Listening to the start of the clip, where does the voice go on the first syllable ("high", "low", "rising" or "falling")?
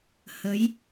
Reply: rising